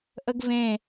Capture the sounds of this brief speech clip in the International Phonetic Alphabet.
ʔ ə ɡ v ẽ

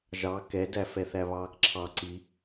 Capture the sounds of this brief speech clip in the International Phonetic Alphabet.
ʒ ɑ k ɛ d æ f ɛ θ æ β ɑː k ǁʰ ɑ ǀ i

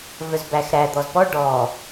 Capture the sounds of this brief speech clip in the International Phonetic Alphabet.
v œ z b æ x ɾ æ d̪ ɔ z p ɔ ɖ ɔ

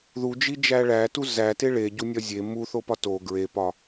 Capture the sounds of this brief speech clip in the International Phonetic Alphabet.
ð u d͡ʒ i d͡ʒ æ ɭ æ t u z æ t e ɭ e ɟ u nʲ ɒ zʲ e m u θ o p ɒ t o ɡ ɹ e p ɒ

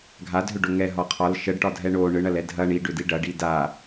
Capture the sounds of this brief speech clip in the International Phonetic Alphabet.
ɡʱ a d ɦ ʏ ɖ o ŋ ɛ ɦ ɒ qʰ ɒ l ʃ ə ɖ ʈ ɒ dʱ ɛ ɳ o ɳ ɯ ɳ ɐ l ɛ dʱ ɐ ɳ i ɖ ʏ d i ɖ ɐ ɖ i d a

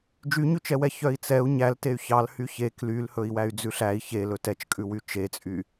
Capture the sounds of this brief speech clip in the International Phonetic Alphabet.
d͡ʒ y ɲ ʉ t͡ʃ ɛ w ɛ ç œ i̯ t͡s ɛ u̯ ɲ æ l t e y̯ ç ɑ l h y ç e k l y l h ɵ i̯ w æ y̯ d͡z ʉ ɬ æ i̯ ç e l ɵ t ɛ t͡ʃ kʼ ʉ w y t͡ʃ e t͡sʼ y

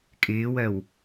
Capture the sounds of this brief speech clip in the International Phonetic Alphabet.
kʼ ɪː w ɜ w

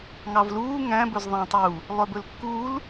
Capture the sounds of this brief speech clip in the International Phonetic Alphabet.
ŋ ɑ v l uː ŋ æ̃ b ɵ z ðˤ æ̃ tˤ u | lˠ œ b ɵ l kː uː l

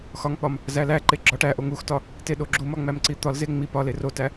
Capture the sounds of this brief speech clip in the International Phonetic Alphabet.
x ɒ ŋ k͡p ɒ m | z æ l æ ǃ e ɡ͡ǁ ɒ ʈ æ ʔ o ŋ u x t ɒ | t e ɗ o ɡ͡ǁ u m ɒ ŋ͡m æ m ǀ i t̪ ɒ l z e ŋ͡m i p ɒ l e r o t æ

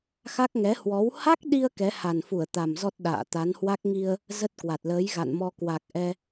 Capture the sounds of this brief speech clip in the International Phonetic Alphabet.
x a˦˥ k̚ ŋ ɛ˨˦ h w ɔ˨˦ w h a˦˥ k̚ ɗ i˧ ə̯ k ɛ˨˦ h a˨˩ n f u˧˩ ə̯ t̪ a˨˩ m z ɔ˦˥ t̚ ɗ a̰ː˧˨ t̪ a˨˦ n h w a˦˥ k̚ ŋ i˧ ə̯ | z ə˦˥ t̚ k w a˨˩ t̚ l əː˨˦ j ɣ a̰˧˨ n m ɔ˧ k w a˨˩ k̚ ʔ ɛ˧

